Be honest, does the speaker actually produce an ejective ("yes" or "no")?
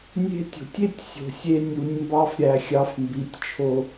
no